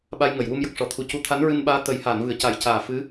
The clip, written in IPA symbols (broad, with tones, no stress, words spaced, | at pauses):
ɓa˧jŋə˨˩˨jwu˧m jə˨˩k̚ ʂɔ˨˩˨ t̪ʰu˨˩cu˧˥ t̪ʰa˧˥nɹɨ˧nɓaː˧˥ t̪ə˨˩˦j haː˨˩˨nvɨ˨˩˨ə̯ ca˨˩˦jcaː˨˩fɨ˧˥